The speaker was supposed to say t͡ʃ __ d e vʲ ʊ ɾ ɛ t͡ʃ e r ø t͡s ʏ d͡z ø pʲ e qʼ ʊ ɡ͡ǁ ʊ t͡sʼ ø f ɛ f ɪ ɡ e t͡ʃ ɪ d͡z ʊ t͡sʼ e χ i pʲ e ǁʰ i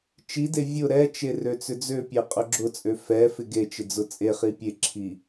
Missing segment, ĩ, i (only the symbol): i